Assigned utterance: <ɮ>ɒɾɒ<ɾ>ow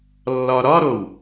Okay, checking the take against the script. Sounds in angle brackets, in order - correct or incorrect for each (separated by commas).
incorrect, correct